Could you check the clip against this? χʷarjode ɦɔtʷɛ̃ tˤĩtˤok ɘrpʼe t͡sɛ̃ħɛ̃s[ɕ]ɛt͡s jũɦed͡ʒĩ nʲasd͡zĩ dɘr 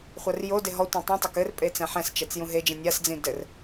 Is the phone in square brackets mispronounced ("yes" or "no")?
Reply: yes